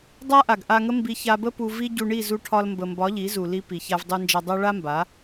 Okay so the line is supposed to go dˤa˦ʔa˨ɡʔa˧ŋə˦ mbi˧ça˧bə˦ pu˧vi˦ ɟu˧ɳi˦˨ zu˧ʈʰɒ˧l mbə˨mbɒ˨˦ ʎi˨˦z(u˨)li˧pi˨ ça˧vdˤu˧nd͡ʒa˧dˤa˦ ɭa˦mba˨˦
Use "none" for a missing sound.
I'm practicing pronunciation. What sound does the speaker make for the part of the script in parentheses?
u˨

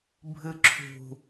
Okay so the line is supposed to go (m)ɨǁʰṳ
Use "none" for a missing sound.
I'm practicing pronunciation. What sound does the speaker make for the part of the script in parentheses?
bʱ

